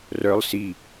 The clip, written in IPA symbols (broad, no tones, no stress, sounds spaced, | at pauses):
r œ lˠ s i